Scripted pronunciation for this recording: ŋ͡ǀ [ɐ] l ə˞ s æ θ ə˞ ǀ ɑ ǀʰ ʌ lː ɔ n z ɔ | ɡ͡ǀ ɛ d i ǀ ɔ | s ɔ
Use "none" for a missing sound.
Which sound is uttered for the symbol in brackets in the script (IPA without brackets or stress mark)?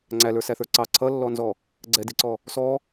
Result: æ